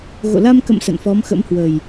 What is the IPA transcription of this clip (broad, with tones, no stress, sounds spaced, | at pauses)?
ɣ o̰˧˨ l a˧ m k ə̰˧˨ m s ə̰˧˨ n f ɔ˨˦ m x ə̰˧˥ m h w ə˨˩ j